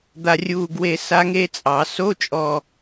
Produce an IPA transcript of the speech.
d̪ a˨ rʲ uː˨ ɡ w e˨ s a˦˥ ŋ e˦˥ t͡sʼ ɑ˨˩˦ s o˧˥˧ t͡ʃʼ ɔ˨

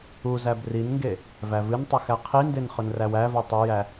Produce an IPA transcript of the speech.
u z æ b r i n ŋ ɡ e | v æ v ɨ n tˤ ɨ x æ qʰ i n d e n χ ɵ n r æ w æ v i tˤ ɵ j æ

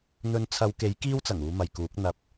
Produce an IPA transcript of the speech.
n̪ ɵ˨˧ n t͡sʰ ɐ˨˧ w k e˨˥ j k iː˥ w t͡s ɐ˨˩ ŋ uː˨˧ m ɐ˨ j k uː˨˥ k̚ n̪ ɐ˧ p̚

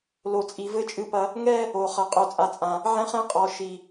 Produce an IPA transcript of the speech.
l o˨ t͡sʼ i˨ v ɘ˦ t͡ʃʼ ɨ˦ p ɐ˦ | ŋ ɛ˦ | o˨ χ ɐ˨ qʼ o˨ t͡sʼ a˨ t͡sʼ ã˨ | ʕ ɛ̃˦ χ ɛ̃˦ qʼ ɔ˨ ʃ i˨

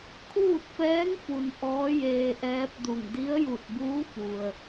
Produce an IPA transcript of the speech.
kʰ uː˥˨ t̚ f ɛː˧˥ ŋ f u˩ n ʔ ɔː˧˥ j eː˧ ʔ ɛː˧˥ p̚ d u˧˩ ŋ d i˧˥ ə̯ j u˧˩ t̚ b uː˧˥ f u˩ ə̯

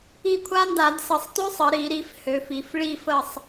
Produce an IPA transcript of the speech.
i˦˨ kʷʰ a˦˥ n d a˧˩˧ d s ə˧˩˧ sˤ t ø˦˥ sˤ ə˩˧ ɾ i˧˩˧ ɾ i˩˧ f h ø˩˧ f i˩˧ f ɭ i˦˨ f ə˦˨ sˤ

